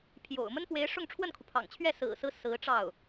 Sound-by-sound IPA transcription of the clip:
pʰ j o̰˨˩ ʊ̯ m ə˥ n p w e˧˥ ɪ̯ ʂ ʊ˥˧ ŋ ʈ͡ʂʰ w ə˥˩ n kʰ u˩ pʰ ɑ̰˨˩ ŋ t͡ɕʰ ɥ ɛ˥˩ s ɹ̩˨˩ s ɹ̩˦ s ɹ̩˧˥ ʈ͡ʂ ɑ˥˩ ʊ̯

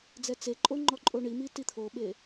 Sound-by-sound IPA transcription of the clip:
d͡z ɛ t͡s e ǃʼ o ŋ͡ǃ ɔ ǃʼ o ɳ i m i t i t̪ʰ o ɓ e

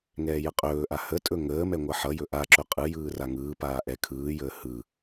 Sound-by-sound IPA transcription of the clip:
ŋ ɛː j ə qʼ ɵː ʔ a h ə tʼ ɵ ŋ əː m ɛ ŋʷ ʌ ħ ʌ j ɵ ʔ a ǁ ɵ qʼ ɯ j ɯː r a ŋ ɯː p aː ʔ ɛ kʰ ɯː j əː h ɯ

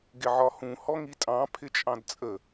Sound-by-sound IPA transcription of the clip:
ɡ ɪ ʕ ɒ h ũ h ɔ ŋ i tʼ ɑ̃ pʰ ɪ t͡ʃʼ ɑ̃ d t͡sʼ ə

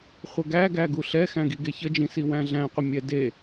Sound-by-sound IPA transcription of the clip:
χʷ ə ɡ æ ɡ æ ɡ u ɬ ɛ x æ̃ ɡ i ɡ e ç ə d͡ʒ ĩ s i w æ̃ ɮ æ̃ qʷ ə mʲ ɛ d e

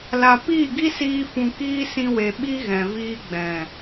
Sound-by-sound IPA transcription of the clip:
l a˨ p iː˦˨ ɡ i˦ s iː˧ f ũ˨ k iː˧ s ĩ˧ w e˨ ɓ i˦ ɣ ɛ̃˨ v iː˧ ɡ͡b ɛ̃˨

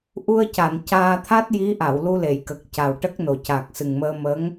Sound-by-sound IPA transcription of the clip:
ʔ u˧ ə̯ c a˨˩˨ n c aː˧ t̪ʰ a˦˥ t̚ j i˧˥ ʔ a˨˩˨ w l u˧ l e˨˩˨ j k ə˨˩ k̚ c a˨˩ w ʈ ə˦˥ k̚ n o˨˩ c a˨˩ k̚ s ɨ˨˩ ŋ m əː˧ m ə˧˥ ŋ

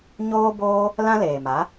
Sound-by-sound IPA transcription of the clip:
ɲ oː˦ b oː˦ | l ã˦ l eː˨ m a˨˦

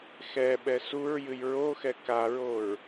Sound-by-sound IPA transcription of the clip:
x ɛ ɓ ɛ s u ɹ j ɨ j ɹ o x ɛ k a ɹ o ɹ

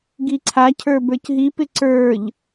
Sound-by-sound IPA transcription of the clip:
ɡ i ǀʰ a cʰ ə˞ b ə˞ c ɦ i p ɪ ǀ ə˞ ʎ

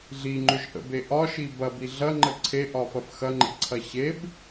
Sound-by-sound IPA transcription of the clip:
ɮ i ŋ͡ǃ ʏ ʒ ʔ ə̰ b e ʔ ɒ ʃ i b ɐ b i ɮ ɐ ŋ͡ǃ ə ǀʰ e ʔ ɒ f ɐ f x ɐ ŋ͡ǃ ḛ ǀʰ ɐ ɕ e b

